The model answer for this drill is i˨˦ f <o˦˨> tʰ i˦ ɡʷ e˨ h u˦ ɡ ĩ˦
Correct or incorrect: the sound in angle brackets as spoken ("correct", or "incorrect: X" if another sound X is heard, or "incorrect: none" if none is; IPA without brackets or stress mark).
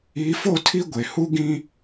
correct